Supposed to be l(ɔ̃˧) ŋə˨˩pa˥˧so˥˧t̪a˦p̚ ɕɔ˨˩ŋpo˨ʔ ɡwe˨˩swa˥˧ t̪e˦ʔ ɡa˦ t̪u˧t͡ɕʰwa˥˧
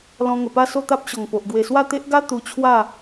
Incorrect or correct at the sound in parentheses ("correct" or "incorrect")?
correct